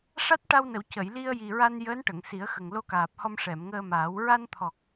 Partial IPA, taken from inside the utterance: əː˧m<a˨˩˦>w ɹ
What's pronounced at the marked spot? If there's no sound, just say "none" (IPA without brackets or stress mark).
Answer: aː˨˩˦